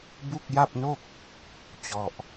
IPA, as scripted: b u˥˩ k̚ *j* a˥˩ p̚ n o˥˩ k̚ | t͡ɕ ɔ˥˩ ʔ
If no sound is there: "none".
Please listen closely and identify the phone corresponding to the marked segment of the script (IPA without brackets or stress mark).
j